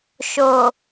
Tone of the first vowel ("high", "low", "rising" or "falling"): low